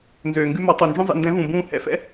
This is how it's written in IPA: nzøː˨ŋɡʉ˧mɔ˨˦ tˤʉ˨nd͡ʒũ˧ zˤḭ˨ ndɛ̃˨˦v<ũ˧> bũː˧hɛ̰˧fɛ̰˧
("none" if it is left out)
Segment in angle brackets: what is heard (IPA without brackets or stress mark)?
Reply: ũ˨